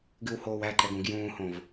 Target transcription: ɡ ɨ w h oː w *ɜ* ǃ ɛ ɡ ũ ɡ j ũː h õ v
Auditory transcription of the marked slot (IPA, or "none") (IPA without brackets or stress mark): æ